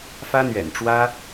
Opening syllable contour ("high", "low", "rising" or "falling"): high